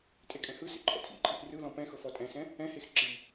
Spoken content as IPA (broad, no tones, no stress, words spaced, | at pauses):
tʼekʼɛ̃hɯsḛ ǃʰɔ̰tʰḭǃʼiʔ rɯlɔ̃ pɛ̃ xɤfɔtʼɛ̃sɛ̃ | ɛ̃hex ǁi